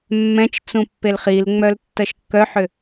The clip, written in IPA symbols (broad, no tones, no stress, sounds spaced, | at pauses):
mː ɛ̃ t͡ʃ t͡s ũ pː e l χ i l ŋ͡m œ l tː ɜ ʃ kː œ ħ ʏ